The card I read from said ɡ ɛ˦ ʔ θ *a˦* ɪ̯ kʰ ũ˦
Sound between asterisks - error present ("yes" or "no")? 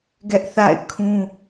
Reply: yes